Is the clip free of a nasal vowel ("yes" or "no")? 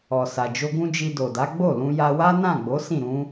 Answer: no